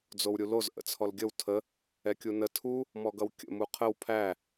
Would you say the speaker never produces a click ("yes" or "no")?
yes